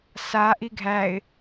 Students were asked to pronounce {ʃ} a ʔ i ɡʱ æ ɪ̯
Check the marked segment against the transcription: incorrect: s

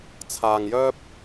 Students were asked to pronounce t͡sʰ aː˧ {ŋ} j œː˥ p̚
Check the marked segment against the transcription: correct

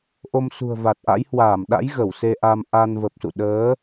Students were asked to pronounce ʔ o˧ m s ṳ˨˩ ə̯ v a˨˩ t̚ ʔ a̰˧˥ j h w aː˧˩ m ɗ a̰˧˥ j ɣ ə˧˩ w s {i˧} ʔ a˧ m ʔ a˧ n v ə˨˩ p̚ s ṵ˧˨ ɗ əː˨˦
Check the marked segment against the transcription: incorrect: e˧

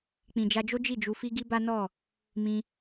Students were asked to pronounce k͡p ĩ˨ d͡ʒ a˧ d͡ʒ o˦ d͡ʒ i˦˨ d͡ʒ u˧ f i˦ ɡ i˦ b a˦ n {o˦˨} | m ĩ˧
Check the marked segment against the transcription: incorrect: ɔ˦˨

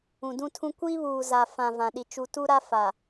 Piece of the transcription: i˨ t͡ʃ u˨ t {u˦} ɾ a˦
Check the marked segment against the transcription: correct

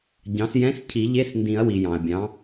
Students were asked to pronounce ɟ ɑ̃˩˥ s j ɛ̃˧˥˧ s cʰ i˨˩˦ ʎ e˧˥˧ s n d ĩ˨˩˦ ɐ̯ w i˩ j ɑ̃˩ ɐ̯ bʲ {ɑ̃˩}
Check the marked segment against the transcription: incorrect: ɑ̃˩˥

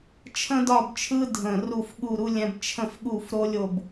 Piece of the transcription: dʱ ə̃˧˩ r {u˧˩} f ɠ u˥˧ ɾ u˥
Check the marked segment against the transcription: incorrect: u˥˧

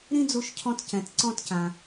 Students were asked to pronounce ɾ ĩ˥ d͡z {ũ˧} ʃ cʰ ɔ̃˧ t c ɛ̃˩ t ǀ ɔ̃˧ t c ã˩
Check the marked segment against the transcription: incorrect: u˧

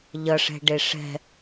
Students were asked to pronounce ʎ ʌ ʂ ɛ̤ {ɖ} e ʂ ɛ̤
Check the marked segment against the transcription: correct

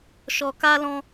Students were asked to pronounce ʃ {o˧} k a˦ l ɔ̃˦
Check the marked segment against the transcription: incorrect: ɔ˧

